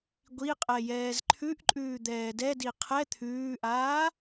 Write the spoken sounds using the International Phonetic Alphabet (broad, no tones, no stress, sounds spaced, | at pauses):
ɡʷ i qʼ ɛ j ɛː z ǃʰ ʉ ʔ ǃʼ ʉː d̪ ɛː d ɛ d i qʰ ɛ t̪ʰ ʉː ʔ aː